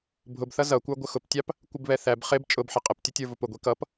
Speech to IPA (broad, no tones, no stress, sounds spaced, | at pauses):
bʱ ʊ b θ ʌ z ʌ kʷ ə˞ ɡʷ ə x ʊ p tʲ ɑ p | kʷ ɪ b β ɛ θ æ b χ ɪ b t͡ʃʼ ʊ b ħ ɪ qʼ ɪ p tʲ ʊ tʲ ə˞ v ʊ p ʊ ɡʷ i k ʌ p